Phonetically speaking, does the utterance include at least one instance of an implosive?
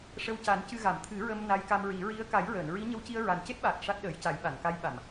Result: yes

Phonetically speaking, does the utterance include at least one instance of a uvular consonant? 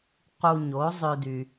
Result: yes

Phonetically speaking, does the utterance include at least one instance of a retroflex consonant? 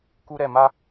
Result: no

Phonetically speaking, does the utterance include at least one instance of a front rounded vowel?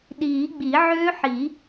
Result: yes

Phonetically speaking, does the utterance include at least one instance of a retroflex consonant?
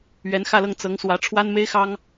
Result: yes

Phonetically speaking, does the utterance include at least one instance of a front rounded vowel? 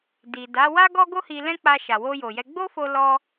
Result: no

